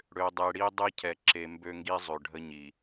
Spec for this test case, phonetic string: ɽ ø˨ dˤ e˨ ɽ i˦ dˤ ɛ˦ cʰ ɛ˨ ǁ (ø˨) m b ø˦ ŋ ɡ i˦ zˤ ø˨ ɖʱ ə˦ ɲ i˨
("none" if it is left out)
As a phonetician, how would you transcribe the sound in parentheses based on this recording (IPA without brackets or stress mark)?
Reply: e˨